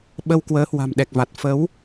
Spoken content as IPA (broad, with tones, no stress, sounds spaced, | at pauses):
ɓ ə˧ w k w əː˨˦ h w a̤˨˩ m ɗ ɛ˨˩ k̚ v a˨˩ t̚ f ə˨˦ w